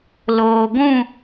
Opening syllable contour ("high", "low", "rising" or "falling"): low